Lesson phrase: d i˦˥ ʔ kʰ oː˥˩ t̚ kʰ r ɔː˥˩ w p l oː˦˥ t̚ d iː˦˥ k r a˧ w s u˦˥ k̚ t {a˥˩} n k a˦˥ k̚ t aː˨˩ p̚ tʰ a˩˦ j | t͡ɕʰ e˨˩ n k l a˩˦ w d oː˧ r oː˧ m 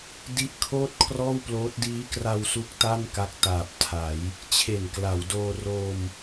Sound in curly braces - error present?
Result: no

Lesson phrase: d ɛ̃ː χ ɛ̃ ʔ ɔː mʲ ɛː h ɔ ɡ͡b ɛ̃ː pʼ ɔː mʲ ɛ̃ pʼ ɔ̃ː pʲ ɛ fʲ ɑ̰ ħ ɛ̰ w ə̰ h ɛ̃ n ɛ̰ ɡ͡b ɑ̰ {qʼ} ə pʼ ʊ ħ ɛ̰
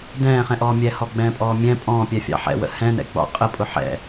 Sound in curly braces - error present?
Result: no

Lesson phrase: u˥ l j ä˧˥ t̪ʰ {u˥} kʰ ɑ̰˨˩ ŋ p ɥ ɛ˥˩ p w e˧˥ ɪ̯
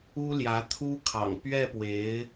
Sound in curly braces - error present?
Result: no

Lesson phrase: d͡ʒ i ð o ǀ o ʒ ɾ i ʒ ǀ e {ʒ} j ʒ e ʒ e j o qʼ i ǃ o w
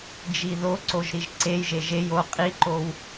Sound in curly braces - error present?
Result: yes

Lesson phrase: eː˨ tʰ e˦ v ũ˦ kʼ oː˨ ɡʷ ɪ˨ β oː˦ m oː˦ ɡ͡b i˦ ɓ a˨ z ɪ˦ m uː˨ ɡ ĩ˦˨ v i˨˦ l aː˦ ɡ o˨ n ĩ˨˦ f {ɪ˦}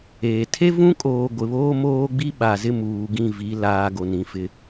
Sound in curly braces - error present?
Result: no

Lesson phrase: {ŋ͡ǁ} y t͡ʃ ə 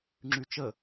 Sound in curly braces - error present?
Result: no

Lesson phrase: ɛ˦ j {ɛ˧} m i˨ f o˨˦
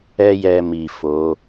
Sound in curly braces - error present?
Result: no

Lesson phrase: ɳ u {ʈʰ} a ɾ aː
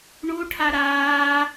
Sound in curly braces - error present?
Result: no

